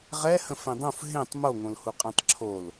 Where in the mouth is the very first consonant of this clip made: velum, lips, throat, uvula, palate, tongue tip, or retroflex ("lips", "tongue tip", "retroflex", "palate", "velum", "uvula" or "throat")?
uvula